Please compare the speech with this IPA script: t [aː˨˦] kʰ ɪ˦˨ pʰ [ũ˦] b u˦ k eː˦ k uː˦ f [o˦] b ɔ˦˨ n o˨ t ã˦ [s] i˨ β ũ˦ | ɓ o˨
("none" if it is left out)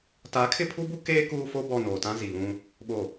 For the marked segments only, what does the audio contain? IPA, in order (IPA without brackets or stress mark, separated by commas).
aː˨˦, u˦, o˦, z